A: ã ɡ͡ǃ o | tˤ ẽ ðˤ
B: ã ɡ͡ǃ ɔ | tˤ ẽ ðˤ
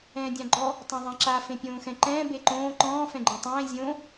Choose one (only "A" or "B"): B